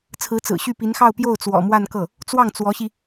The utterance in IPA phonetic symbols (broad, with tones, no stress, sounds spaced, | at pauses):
t͡sʰ ɹ̩˧˥ t͡s ɹ̩˨˩ ɕ y˥˩ p i˧˥ n x ɑ˥˧ ʊ̯ p j o˥˩ ʊ̯ t͡s w ɔ̰˨˩ m w a˥˧ n k ɤ˥˩ | t͡s w ɑ˥˩ ŋ t͡s w ɔ˧˥ ɕ i˧